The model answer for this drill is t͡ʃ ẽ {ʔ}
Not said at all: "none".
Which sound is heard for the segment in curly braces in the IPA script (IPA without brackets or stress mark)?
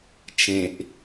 ʔ